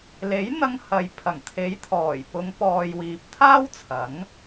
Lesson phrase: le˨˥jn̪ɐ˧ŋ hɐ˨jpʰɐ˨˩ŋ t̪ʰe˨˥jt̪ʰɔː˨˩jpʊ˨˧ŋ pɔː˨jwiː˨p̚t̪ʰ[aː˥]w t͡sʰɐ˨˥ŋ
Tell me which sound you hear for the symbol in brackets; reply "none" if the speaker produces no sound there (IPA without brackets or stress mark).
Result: aː˥